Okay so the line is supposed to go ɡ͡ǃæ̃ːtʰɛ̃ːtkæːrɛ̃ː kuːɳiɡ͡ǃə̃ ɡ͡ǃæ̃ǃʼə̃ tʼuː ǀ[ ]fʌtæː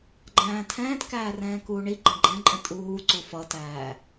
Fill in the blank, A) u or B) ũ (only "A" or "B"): A